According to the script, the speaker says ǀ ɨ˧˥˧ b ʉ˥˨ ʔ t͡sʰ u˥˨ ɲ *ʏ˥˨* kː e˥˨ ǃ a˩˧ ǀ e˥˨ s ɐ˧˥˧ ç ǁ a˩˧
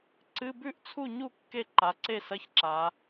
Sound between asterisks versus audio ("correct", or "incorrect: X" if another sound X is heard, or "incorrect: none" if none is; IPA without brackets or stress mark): incorrect: u˥˨